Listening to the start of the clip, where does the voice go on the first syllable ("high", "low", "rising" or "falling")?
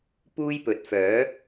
high